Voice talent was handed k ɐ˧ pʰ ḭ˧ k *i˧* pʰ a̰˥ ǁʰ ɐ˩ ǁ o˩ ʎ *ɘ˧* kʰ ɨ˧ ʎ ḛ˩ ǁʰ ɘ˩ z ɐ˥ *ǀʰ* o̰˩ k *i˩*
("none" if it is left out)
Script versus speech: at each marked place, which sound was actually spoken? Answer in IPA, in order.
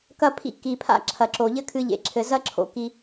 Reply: i˩, ɘ˥, ǁʰ, i˩

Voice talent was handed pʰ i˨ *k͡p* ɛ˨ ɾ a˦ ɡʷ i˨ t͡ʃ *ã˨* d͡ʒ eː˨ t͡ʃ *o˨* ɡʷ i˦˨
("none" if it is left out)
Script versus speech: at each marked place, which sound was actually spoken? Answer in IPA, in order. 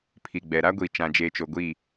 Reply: ɡ͡b, ã˨, o˨

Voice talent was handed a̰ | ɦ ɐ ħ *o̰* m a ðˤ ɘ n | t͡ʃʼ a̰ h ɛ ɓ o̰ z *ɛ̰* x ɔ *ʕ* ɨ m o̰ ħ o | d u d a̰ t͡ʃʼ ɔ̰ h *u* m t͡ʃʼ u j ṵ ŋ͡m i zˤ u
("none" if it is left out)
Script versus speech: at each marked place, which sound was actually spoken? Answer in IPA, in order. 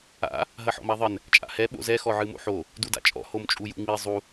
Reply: ɔ̰, ɛ, ʕ, o

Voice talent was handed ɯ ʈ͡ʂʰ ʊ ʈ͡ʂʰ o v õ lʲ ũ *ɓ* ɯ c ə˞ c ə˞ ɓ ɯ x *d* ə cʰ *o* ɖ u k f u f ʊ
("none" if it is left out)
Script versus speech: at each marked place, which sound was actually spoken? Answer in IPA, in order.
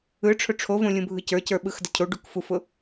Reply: bʱ, d, o

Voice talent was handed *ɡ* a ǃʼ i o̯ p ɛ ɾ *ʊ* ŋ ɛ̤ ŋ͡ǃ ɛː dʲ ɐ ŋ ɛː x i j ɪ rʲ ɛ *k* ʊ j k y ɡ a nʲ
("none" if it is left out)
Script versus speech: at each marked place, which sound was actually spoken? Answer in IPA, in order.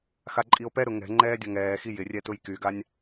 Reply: x, ʊ, t

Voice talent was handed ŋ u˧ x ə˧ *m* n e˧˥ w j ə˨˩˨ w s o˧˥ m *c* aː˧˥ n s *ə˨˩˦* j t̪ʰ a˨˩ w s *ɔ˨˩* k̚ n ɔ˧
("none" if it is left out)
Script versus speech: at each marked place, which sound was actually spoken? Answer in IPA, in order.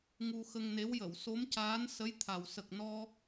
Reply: ŋ, c, ə˧˥, ə˨˩

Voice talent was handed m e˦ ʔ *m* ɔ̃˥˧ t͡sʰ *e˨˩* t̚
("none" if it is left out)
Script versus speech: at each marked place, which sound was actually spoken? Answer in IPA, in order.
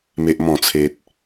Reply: m, e˦

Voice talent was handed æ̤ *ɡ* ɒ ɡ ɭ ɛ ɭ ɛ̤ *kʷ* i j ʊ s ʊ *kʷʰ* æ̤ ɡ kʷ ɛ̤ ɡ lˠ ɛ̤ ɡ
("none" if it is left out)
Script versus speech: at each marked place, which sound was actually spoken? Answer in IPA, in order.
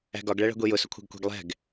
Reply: ɡ, ɡʷ, kʷʰ

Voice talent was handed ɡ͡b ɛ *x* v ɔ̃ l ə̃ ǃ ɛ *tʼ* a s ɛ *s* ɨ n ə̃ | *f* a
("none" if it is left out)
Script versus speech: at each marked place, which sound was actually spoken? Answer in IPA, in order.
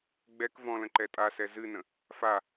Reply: k, tʼ, z, f

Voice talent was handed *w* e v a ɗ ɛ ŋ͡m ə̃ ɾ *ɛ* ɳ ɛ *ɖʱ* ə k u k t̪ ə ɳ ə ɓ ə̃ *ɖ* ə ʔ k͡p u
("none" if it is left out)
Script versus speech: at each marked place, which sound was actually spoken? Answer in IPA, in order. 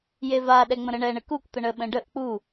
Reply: j, ə, ɳ, ɖ

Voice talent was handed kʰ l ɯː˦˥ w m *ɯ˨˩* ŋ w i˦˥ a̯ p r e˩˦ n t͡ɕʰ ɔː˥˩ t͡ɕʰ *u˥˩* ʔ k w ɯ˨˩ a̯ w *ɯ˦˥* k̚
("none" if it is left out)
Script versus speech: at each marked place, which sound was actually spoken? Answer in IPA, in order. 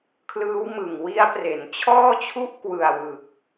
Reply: ɯ˨˩, u˥˩, ɯ˨˩

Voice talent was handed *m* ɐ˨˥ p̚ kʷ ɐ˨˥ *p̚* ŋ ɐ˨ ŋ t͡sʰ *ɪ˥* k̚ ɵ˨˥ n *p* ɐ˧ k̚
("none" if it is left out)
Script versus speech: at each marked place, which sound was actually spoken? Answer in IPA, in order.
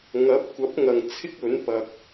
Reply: ŋ, p̚, ɪ˥, p

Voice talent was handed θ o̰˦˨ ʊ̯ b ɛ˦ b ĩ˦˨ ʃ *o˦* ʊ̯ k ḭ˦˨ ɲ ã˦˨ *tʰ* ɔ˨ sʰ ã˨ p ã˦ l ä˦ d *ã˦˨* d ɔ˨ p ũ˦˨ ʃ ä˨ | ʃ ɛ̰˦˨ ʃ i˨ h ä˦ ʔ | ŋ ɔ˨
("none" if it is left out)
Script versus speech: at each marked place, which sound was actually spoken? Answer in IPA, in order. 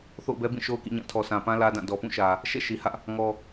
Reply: o˦, tʰ, ã˦˨

